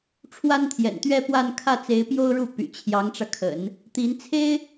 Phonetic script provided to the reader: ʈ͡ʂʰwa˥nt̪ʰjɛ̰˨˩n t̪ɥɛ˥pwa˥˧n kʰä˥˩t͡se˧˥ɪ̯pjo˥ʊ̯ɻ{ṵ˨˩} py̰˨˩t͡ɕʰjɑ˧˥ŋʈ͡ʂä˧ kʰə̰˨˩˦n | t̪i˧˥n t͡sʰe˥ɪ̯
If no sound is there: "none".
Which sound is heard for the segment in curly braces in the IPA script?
u˥˩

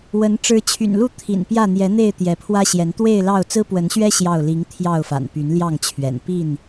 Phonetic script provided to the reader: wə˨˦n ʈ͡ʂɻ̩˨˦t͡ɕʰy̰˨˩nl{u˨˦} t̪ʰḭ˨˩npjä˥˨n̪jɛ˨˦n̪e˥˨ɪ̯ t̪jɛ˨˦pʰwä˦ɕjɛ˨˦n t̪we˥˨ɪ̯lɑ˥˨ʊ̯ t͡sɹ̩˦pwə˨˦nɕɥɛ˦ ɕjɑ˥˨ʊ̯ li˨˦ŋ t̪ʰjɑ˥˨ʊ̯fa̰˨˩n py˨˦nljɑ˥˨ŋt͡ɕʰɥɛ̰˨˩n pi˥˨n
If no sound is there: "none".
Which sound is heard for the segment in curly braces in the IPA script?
u˥˨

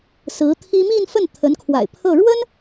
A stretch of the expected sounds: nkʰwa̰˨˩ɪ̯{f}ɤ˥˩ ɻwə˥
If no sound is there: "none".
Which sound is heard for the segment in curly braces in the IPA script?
pʰ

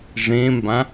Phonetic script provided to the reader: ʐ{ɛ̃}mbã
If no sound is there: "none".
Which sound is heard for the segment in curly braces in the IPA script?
ẽ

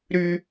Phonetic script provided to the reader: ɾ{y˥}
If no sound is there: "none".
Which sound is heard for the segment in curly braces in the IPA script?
y˥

